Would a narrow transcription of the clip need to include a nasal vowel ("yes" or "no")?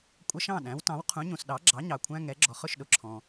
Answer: yes